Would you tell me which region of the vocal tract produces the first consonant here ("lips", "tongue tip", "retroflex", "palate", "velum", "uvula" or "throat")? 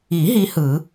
throat